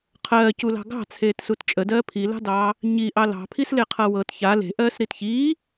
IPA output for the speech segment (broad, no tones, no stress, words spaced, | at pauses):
qʰɜːculɑ̤ ɡɑ̤t͡sʰeːtsut t͡ʃʼədɜː pʰilɑ̤dɑː | ɲiʔɑ lɑ̤pʰisleqʰɤ wɤt ça le̤ʔɜːsɾit çiː